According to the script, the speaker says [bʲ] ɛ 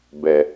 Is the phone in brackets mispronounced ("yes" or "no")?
yes